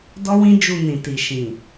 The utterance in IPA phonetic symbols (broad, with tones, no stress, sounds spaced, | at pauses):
d ɔ˦ w ĩ˦ d͡ʒ u˧ n ĩ˨ t i˨ ʃ ĩ˨